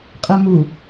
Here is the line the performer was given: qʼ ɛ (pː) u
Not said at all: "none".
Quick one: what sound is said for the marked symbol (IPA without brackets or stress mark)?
m